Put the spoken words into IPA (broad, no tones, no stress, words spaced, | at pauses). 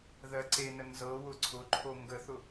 ðɜǀenə nzɤwʊ ǀʰʊǃʰo ŋɡəθʊ